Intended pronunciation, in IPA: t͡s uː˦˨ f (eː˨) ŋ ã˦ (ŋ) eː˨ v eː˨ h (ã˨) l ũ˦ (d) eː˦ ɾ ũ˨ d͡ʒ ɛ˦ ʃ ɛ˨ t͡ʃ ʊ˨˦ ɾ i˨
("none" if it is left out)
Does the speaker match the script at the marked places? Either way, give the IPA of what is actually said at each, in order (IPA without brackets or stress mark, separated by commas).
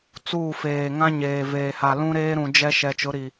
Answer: eː˨, ɲ, a˨, ɾ